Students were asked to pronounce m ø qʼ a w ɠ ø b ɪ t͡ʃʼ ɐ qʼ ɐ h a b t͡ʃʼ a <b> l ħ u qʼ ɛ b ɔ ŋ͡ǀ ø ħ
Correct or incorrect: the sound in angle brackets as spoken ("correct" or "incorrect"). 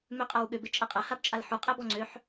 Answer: incorrect